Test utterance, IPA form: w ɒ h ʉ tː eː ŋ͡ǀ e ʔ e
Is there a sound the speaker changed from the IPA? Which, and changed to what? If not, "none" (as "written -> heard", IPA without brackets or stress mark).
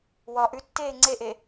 h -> ʔ